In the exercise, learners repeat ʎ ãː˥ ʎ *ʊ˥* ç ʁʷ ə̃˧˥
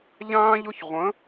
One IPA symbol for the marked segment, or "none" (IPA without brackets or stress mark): ʊ˥